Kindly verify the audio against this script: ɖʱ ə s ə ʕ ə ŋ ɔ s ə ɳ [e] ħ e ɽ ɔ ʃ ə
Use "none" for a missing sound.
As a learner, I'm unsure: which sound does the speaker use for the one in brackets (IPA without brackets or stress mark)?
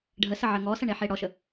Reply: e